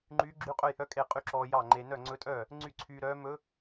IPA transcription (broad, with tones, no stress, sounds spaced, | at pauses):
ŋ͡ǃ yː˧˥ ɡ͡ǁ y˧˥ qʼ ɵ˥˩ j h œ˧˥ kʼ e˥˩ qʼ y˥˩ ǁ ɔː˧ j ɑ˥˩ ŋ͡ǃ e˧ n œ˥˩ ŋ͡ǀ ɵ˧˥ tʼ œː˥˩ | ŋ͡ǀ y˥˩ ǀʰ yː˧ ɾ œː˧˥ m ɵ˧˥